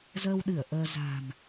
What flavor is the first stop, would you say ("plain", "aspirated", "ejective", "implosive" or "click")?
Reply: implosive